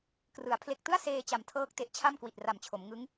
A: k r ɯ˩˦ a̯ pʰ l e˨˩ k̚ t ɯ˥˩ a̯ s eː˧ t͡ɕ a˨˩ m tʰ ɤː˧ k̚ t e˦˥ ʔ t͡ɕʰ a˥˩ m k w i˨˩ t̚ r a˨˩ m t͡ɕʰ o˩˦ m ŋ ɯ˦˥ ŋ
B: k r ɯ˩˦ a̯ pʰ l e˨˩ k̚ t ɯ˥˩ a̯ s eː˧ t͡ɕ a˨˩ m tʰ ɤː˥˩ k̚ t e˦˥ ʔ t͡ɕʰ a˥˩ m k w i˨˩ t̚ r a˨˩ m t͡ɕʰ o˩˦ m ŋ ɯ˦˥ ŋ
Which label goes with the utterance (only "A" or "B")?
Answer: B